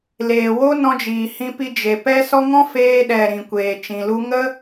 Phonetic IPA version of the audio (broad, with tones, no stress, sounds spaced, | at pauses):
l eː˨ w o˦ n ɔ̃˧ d͡ʒ iː˨ h ĩ˧ p i˧ d͡ʒ e˨ p ɛ˦ s ɔ˦ ŋ ɔ̃˦ f eː˧ ɗ ɛ˨ ɾ ĩ˨ kʷ eː˨ t͡ʃ ĩ˨ l u˦ ŋ ə˦